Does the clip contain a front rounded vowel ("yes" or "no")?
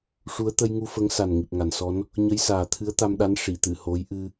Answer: no